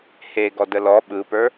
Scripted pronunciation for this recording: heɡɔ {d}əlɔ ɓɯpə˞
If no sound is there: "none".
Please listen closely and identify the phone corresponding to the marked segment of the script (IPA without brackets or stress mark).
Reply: d